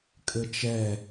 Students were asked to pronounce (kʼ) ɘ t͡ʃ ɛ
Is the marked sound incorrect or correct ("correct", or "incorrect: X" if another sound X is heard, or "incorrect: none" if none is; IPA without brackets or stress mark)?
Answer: correct